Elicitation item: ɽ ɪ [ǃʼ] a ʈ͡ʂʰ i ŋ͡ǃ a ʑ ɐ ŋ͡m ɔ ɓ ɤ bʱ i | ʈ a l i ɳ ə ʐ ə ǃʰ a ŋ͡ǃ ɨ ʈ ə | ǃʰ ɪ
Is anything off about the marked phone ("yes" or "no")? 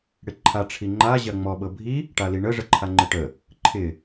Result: yes